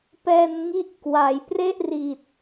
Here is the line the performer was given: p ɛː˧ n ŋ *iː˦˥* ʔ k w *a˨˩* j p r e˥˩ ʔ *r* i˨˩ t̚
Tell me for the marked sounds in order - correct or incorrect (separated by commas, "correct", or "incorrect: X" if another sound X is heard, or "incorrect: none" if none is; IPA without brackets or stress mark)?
incorrect: i˦˥, incorrect: a˩˦, correct